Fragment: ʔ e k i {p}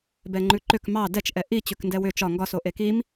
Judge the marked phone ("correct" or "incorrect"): incorrect